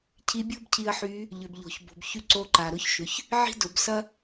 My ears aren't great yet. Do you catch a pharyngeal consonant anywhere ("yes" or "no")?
yes